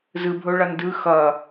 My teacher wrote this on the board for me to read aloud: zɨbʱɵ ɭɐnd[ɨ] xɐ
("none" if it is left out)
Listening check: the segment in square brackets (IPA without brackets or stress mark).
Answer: ɨ